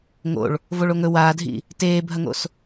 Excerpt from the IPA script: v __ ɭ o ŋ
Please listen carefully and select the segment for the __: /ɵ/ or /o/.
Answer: o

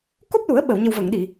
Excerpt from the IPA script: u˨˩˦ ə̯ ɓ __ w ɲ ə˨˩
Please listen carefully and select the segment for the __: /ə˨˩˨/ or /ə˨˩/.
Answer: ə˨˩˨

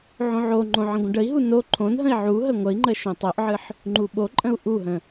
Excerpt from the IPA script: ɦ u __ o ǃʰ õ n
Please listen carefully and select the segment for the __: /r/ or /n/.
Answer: n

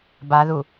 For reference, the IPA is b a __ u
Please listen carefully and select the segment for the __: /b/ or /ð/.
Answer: ð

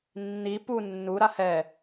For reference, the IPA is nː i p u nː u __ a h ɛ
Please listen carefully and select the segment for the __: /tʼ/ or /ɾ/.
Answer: ɾ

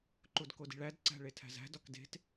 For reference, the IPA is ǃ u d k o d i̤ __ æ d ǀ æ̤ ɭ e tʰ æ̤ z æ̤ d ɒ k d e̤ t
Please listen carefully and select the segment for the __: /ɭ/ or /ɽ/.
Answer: ɭ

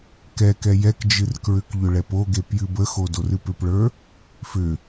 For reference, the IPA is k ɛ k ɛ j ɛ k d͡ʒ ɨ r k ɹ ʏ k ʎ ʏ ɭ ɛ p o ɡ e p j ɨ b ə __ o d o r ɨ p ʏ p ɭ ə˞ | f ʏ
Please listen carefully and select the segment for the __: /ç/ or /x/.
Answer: x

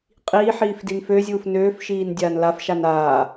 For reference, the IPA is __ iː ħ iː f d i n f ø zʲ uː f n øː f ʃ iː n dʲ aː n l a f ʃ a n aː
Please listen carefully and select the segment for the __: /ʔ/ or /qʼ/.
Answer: qʼ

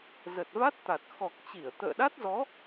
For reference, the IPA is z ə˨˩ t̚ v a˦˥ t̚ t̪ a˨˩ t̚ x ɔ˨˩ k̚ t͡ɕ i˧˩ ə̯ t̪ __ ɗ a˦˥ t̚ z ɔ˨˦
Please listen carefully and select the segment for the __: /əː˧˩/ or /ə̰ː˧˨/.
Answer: ə̰ː˧˨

